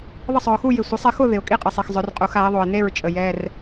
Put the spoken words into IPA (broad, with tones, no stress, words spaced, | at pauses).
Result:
ðˤə˥˩sˤœ˨ʊ̯xu˥˧jɪ˨ sʷe˨˦sˤɪ˨˦xʊ˥˧ ðɪ˨ʊ̯kʼi˥˧qʼɪ˨ sˤi˨xzˤœ˨˦rqʼu˨˦x a˨˦ɪ̯ðˤo˨ɪ̯ne˥˧ɹt͡ʃʼə˨ jɛ˧˥˧r